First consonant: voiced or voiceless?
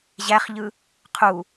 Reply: voiced